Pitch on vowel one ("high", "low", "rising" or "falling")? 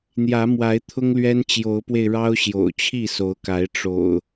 rising